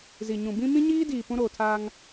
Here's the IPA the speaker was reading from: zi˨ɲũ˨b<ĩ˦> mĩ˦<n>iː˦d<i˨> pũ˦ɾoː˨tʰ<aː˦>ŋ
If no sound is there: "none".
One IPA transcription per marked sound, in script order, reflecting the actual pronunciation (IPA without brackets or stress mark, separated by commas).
ĩ˦, ɲ, iː˨, aː˦